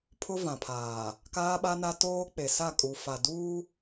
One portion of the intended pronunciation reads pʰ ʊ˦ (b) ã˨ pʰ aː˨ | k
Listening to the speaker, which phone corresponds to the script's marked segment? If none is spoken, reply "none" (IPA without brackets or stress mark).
v